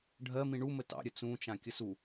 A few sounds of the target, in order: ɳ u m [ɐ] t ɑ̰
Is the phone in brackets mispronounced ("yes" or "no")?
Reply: yes